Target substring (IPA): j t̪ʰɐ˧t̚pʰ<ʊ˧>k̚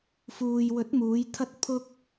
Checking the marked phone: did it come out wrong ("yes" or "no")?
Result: no